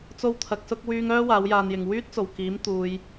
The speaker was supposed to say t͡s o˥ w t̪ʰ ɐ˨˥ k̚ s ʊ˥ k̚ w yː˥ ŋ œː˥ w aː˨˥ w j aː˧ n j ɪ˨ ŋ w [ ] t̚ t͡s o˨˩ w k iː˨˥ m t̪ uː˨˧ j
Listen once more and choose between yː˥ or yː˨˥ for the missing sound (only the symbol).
yː˥